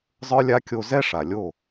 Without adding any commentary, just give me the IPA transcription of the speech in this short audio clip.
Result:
zˤ ə˞˦ lʲ a˦ kʲ o˧ z ɛ˦ ʂ a˨ lʲ o˦˨

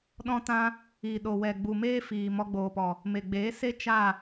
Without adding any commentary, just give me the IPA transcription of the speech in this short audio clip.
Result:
ɗ ɔ̃˦ t ã˦ | i˨ ɗ o˨ w ɛ˨ ɡ͡b u˨ m eː˦ f iː˨ m ɔ˧ ɡ͡b oː˨ p ɔ˨ | m e˨ ɡ͡b eː˨˦ s e˦ t͡ʃ a˦˨

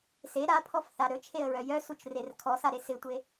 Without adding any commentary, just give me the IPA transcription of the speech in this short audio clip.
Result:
s e ɾ a pʰ ɔ f θ a ɾ ɵ t͡ʃʰ e ə̯ ɹ œ j œ s u t͡ʃ r e r kʰ ɔ s a ɾ e s ɪ tʷ e

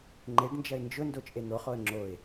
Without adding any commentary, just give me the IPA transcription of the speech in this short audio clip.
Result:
ŋ͡ǃ e ɖ n d͡ʒ ɐ ɪ̯ n d͡ʒ ʊ n d o t͡ʃʼ e n̪ o χ o ə̯ ŋ͡ǁ o ɪ̯

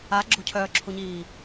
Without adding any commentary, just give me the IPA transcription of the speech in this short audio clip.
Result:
a ɡ͡ǁ o̤ cʰ œː ǁʰ u ɲ iː

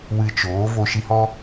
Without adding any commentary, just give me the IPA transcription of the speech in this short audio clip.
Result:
w ɨ˧ t͡ʃ oː˨˦ v o˧ ʃ i˧ h ɔ˦

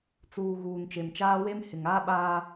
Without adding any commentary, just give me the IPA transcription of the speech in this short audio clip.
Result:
t͡s uː˨ ɣ uː˨ n t͡ʃ e˨ m t͡ʃ aː˦ w e˦ m h ɪ˨ ŋ aː˦ ɓ aː˦

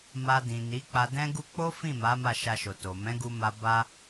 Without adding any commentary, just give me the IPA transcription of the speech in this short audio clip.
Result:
m a˧ d ĩ˨ n i˨˦ k͡p a˧ d ɛ̃˦ ɡ u˦ k͡p o˦ f ĩ˦˨ m a˨˦ m a˦˨ ʃ a˧ ʃ o˨ t o˨ m ɛ̃˨˦ ɡ u˧ m a˧ b a˦

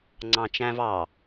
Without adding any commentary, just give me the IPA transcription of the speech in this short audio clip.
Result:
ŋ͡ǀ ɑ̃ t͡ʃ æ̃ v ɑ

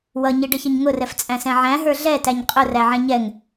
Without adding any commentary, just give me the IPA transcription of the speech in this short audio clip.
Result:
w ʌ ɲ i ɖ ə ç ə ɲ ŋ ʊ r ɛ f t͡sʼ æ̃ s ɛ̃ ʕ æ̃ ɦ ə˞ ɮ ɛ t æ ɲ qʼ ʊ r æ ʕ ɛ̃ ɲ ɛ ŋ

